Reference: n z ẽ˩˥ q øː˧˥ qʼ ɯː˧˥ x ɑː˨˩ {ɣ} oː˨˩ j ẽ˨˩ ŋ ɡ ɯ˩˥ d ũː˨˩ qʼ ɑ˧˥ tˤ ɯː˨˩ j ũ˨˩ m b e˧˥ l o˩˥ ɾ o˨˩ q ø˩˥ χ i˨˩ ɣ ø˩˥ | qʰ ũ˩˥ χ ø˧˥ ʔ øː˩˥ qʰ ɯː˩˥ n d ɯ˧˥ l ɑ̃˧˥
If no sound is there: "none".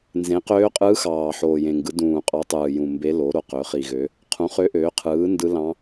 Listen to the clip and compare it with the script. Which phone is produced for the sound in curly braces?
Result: ħ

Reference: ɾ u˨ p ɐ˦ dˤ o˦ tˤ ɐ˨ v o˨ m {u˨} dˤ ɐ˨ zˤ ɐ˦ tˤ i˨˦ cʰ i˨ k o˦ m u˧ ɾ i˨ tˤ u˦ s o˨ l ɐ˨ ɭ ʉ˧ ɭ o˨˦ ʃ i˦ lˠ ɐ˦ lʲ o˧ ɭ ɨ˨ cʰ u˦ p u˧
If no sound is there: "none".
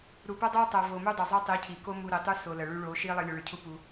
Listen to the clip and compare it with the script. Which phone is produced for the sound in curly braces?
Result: u˦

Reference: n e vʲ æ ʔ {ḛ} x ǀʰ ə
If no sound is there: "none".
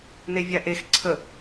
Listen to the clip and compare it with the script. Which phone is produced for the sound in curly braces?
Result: e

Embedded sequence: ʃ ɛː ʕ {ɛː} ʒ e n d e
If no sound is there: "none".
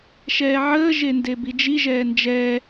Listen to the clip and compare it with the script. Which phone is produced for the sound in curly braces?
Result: əː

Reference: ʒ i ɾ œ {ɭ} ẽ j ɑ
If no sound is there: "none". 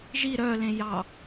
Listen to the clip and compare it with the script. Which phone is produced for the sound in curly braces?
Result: l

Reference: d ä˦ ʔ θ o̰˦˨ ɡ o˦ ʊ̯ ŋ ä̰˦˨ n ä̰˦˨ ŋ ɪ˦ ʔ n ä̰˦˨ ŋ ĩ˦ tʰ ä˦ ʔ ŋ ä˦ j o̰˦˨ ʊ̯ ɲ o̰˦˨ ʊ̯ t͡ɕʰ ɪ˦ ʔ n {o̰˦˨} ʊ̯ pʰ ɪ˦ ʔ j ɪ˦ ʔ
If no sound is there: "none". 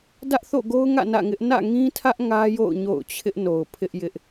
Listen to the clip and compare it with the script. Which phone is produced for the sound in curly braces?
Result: o˨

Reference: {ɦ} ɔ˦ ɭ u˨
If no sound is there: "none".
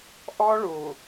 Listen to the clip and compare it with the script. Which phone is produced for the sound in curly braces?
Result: ʔ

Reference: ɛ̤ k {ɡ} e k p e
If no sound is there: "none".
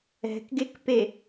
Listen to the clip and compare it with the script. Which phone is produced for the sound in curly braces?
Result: ɡ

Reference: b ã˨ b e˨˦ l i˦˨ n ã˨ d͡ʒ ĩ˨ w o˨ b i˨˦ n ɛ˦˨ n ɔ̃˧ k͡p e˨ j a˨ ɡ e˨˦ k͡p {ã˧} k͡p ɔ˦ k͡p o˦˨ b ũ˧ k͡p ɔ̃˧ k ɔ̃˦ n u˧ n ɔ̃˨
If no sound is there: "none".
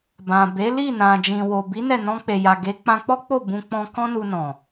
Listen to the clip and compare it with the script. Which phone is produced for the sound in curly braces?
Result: ã˧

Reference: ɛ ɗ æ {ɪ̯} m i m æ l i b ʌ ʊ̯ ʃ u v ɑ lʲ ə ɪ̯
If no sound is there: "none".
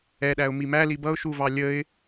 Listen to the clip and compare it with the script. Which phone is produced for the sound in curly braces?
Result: ʊ̯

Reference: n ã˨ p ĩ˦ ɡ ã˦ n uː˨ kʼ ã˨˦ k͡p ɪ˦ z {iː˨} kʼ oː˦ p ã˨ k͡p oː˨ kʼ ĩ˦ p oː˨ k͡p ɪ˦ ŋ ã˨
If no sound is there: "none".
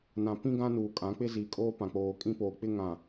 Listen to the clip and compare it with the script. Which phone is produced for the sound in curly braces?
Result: iː˨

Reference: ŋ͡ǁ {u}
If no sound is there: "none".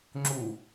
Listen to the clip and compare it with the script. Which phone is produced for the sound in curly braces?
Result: u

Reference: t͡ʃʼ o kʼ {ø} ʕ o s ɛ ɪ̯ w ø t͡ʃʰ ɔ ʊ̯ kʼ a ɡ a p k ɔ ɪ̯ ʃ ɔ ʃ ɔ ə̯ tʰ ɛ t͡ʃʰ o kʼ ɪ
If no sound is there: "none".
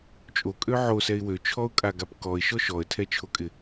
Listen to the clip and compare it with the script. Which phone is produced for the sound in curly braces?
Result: ø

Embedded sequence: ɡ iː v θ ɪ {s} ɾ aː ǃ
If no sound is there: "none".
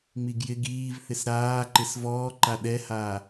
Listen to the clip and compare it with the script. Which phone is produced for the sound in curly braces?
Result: s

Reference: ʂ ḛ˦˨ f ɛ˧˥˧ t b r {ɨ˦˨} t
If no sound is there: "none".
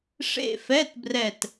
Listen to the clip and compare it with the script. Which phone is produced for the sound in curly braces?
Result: ɛ˦˨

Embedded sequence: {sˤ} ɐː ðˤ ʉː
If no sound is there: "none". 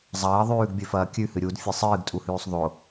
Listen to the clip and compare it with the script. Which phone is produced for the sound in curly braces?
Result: zˤ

